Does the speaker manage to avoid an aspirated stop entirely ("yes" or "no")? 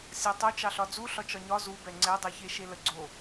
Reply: yes